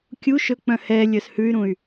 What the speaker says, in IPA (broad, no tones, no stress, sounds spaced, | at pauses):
kʲ u ʃ ɵ k͡p œ̃ h ɛ lʲ œ s h ʉ y̯ ɾ ũ y̯